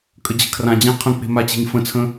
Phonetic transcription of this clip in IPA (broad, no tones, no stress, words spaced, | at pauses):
kʼəd͡ʑə̤kʰrãd͡ʑã qʰə̃k͡pe̤ mat͡ɕe̤ɲfə̃t͡sʰə̃